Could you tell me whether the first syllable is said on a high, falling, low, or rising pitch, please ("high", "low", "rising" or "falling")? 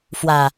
low